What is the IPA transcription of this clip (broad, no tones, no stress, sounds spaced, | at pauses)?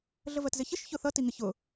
ɮ ə v ɜ t z ɪ ç ə ʃ ç ʊ θ ʌ t i ŋ ɪ ç ʊ